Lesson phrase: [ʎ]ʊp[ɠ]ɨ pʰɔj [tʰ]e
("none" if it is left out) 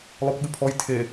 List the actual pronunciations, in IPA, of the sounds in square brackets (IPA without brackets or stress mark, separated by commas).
lˠ, ɠ, tʰ